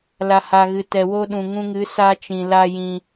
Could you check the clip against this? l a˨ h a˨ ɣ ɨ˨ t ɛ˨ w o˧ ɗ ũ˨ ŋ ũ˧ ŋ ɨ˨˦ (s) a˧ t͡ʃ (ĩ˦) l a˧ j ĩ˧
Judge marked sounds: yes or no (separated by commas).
yes, no